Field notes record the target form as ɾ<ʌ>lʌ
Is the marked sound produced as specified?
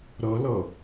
yes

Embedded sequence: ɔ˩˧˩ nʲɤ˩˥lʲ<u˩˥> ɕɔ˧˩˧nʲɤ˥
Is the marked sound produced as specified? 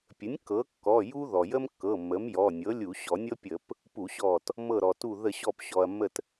no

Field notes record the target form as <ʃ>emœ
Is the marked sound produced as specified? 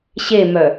no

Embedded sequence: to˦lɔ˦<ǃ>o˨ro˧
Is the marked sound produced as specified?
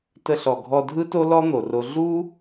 no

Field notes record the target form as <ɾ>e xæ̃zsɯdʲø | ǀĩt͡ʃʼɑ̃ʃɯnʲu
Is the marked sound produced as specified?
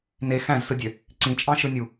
no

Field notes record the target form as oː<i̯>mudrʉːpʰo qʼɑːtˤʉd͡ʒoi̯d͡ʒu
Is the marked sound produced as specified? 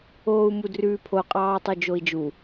no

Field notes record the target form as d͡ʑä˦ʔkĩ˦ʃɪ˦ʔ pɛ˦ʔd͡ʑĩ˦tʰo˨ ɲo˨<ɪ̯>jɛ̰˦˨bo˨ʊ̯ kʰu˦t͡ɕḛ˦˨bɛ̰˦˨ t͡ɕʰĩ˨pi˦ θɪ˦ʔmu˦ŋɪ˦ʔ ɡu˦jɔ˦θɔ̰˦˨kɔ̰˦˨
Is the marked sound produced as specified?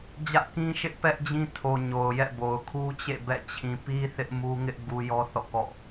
no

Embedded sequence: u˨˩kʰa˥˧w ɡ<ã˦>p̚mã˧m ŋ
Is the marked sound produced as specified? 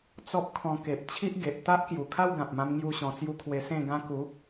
no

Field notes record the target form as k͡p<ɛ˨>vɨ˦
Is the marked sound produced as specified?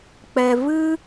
yes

